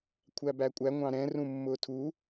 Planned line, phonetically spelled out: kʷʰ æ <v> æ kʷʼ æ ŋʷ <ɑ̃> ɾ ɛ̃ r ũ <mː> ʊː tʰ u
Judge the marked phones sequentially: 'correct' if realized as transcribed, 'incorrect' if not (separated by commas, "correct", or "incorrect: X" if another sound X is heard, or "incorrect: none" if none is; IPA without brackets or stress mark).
incorrect: b, correct, correct